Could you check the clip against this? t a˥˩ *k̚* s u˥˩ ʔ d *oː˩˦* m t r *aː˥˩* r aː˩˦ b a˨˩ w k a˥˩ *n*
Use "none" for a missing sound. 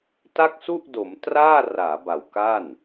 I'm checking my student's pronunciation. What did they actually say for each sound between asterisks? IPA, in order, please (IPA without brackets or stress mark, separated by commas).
k̚, o˩˦, aː˥˩, n